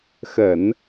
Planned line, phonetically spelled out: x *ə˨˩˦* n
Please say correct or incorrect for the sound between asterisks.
correct